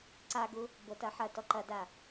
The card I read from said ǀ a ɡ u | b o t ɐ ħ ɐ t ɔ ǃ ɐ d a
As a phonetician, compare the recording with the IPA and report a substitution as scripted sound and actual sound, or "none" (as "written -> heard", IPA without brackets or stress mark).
none